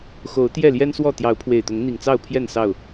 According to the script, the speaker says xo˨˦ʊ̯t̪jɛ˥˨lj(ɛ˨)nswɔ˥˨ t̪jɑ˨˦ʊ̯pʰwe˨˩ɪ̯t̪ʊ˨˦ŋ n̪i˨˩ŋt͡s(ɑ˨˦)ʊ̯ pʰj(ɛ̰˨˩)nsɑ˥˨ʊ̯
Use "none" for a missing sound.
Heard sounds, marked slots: ɛ˦, ɑ˥˨, ɛ˥˨

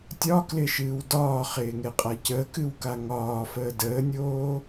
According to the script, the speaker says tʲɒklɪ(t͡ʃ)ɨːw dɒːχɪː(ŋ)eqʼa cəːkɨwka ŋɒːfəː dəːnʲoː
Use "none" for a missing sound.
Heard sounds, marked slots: ʃ, ŋ

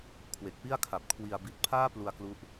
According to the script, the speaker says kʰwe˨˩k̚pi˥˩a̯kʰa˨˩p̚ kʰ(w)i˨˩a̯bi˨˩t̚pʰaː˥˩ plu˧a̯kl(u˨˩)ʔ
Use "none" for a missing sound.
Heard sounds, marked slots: w, u˦˥

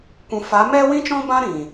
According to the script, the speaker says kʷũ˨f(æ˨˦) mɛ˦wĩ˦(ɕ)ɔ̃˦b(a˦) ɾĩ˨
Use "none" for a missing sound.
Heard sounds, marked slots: a˨˦, t͡ʃ, ã˦

